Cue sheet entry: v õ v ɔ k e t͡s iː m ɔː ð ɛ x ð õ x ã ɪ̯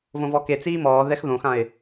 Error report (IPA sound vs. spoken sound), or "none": none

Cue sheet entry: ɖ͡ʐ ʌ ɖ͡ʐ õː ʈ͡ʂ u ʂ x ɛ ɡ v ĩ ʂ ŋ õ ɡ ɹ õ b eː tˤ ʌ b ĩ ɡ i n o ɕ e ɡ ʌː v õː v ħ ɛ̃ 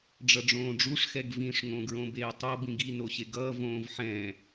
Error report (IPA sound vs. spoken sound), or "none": ʈ͡ʂ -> ɖ͡ʐ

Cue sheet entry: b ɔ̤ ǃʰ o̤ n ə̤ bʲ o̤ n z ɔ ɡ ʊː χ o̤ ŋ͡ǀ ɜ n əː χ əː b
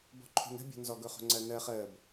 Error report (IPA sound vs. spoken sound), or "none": none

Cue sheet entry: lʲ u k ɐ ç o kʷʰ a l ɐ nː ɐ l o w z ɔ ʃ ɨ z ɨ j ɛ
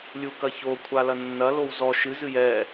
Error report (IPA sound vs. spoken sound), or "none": none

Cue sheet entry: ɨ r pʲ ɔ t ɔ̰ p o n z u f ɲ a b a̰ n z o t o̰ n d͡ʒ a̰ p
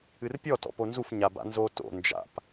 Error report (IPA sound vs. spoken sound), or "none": none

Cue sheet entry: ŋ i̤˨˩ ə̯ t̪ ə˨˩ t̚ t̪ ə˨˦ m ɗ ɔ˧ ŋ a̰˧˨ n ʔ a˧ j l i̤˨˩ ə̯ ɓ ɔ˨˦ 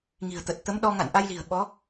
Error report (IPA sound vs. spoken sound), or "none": none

